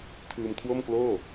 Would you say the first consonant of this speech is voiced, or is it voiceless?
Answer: voiceless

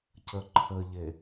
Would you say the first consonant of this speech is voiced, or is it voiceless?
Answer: voiceless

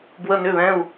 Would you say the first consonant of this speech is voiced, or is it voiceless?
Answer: voiced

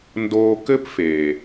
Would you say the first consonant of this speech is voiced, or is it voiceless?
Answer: voiced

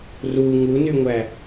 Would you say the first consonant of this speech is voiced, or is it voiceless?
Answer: voiced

